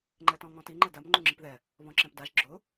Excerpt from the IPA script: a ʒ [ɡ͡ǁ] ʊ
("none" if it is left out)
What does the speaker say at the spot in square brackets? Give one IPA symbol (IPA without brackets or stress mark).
ɡ͡ǁ